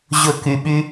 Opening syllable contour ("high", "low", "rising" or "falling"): falling